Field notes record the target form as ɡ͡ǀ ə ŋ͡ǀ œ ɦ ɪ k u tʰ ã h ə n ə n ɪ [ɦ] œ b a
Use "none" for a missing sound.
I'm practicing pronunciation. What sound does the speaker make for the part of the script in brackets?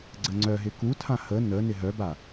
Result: ɦ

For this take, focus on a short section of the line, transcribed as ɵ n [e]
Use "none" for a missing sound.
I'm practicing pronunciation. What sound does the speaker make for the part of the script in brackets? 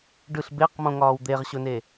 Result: e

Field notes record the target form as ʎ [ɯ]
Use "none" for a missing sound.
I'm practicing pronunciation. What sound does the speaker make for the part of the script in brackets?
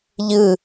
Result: ɯ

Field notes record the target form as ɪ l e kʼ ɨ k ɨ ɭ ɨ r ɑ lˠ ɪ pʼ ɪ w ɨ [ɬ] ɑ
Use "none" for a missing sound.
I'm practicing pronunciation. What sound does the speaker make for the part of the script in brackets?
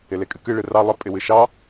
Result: ʃ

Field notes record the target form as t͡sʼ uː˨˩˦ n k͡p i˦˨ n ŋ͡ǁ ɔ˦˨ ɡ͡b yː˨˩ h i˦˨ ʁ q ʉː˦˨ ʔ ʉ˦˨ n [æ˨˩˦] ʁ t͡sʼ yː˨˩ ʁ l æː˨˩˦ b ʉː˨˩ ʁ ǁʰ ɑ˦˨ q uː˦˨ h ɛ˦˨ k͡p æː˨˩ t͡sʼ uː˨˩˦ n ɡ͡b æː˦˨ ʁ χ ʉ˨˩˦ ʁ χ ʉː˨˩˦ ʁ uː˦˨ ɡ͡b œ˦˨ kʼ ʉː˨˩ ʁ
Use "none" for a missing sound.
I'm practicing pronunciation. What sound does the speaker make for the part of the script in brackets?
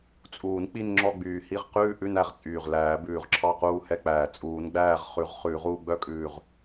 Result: æ˨˩˦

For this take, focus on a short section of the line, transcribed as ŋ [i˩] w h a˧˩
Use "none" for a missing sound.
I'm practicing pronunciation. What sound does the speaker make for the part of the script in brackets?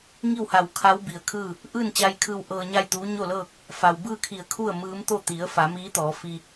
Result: i˥˨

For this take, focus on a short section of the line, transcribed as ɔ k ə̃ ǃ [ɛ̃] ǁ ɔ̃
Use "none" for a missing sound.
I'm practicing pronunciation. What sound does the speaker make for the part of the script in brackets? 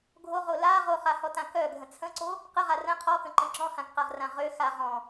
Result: ə̃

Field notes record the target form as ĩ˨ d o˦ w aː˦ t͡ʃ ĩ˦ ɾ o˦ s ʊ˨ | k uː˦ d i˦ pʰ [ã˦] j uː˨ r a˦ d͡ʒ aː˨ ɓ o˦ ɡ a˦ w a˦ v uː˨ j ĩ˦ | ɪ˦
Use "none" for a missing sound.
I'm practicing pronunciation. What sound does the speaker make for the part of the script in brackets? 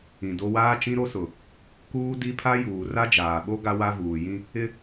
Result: a˦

